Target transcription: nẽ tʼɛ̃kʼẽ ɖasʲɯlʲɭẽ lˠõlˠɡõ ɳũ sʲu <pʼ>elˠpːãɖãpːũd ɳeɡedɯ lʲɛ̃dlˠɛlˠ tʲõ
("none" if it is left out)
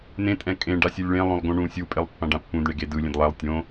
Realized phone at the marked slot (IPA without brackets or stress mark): pʼ